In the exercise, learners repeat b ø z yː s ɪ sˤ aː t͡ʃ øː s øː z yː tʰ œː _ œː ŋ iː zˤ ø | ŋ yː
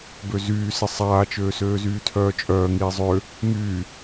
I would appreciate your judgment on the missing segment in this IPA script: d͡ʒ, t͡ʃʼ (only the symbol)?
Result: t͡ʃʼ